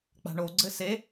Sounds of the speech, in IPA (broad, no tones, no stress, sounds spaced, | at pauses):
k͡p a̤ ɳ o ɡ͡ǀ ɘ s e